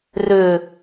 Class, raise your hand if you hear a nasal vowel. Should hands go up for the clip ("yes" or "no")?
no